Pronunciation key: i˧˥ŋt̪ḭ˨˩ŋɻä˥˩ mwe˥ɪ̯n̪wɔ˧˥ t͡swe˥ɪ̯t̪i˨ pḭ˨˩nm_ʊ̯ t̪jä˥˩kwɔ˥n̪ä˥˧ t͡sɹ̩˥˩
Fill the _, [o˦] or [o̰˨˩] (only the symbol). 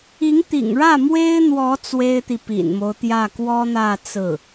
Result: o˦